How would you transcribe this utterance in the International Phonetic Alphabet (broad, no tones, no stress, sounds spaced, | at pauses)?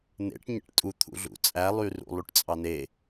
n̪ ḛ ʈ ɲ ḛ ʈ tʼ u t̪ʰ ṵ ɮ ṵ t͡sʼ æ lˠ y r ṵ lˠ y ʈ t͡sʼ ɑ n e